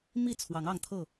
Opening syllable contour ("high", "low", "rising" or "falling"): falling